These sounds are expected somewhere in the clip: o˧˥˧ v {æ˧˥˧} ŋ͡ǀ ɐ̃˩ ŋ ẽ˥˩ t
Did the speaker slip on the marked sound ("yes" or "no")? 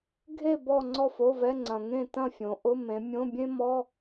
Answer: yes